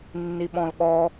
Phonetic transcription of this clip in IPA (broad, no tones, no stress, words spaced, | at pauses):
nːiɓɔ̃lɠɔ